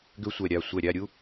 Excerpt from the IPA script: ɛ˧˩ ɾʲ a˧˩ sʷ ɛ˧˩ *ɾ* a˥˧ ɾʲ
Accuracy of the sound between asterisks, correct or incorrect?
incorrect: ɾʲ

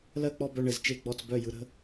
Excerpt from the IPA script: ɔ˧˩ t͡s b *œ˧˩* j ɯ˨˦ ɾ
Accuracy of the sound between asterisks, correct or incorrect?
correct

